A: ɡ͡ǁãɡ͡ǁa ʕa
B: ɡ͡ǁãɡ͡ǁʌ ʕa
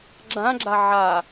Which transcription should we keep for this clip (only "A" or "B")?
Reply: A